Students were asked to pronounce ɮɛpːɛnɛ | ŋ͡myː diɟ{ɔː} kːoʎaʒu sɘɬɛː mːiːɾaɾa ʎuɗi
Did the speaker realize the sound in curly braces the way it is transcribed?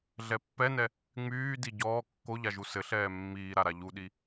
yes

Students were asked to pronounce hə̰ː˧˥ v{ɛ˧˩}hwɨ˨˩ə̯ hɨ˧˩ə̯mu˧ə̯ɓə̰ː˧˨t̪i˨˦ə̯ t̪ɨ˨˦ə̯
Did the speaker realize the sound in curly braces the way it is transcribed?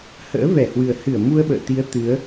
yes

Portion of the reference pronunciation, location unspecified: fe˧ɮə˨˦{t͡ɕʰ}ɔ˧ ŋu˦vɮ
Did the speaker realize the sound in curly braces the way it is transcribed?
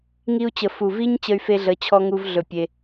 yes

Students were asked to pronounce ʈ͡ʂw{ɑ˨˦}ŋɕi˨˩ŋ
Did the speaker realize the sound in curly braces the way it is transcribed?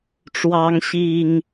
yes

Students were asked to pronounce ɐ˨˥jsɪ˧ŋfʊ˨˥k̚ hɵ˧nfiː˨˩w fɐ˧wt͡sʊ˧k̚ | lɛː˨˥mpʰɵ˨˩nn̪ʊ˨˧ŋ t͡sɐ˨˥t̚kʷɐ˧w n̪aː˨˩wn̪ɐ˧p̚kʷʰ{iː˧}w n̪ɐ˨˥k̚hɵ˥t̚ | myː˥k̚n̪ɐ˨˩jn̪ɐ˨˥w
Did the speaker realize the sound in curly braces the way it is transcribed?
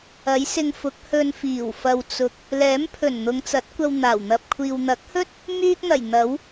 yes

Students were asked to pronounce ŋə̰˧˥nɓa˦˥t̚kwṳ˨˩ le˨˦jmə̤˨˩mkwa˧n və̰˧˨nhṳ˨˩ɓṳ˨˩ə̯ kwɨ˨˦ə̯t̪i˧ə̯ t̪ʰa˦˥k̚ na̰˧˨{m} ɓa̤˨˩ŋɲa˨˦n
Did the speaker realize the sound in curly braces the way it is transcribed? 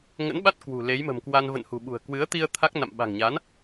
yes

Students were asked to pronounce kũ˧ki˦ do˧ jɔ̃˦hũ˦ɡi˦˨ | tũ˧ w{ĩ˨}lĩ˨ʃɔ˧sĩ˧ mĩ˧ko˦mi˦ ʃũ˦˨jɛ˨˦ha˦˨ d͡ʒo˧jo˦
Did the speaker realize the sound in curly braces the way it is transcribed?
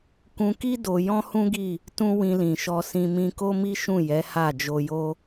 no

